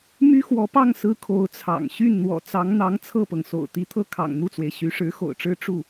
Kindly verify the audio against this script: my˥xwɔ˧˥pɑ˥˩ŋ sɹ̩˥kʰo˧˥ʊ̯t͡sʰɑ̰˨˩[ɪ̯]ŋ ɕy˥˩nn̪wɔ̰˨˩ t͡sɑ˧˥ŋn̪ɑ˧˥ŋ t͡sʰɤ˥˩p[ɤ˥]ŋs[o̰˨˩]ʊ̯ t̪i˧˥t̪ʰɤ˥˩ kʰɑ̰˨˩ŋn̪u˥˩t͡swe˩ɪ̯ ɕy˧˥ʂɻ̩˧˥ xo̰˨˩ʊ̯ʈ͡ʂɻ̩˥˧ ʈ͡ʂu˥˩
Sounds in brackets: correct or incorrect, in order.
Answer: incorrect, incorrect, correct

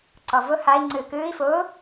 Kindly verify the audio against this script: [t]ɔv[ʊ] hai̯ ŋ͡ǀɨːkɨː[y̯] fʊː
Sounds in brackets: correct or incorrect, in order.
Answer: incorrect, correct, incorrect

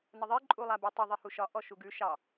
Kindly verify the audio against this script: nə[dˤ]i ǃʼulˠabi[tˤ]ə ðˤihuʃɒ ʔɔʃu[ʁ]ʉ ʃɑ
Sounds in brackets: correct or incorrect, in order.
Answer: incorrect, correct, incorrect

